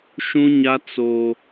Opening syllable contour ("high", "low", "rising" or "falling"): high